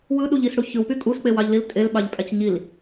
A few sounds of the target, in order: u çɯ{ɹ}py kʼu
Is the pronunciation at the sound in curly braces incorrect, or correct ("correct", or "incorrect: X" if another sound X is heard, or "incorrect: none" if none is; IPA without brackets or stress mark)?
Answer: incorrect: w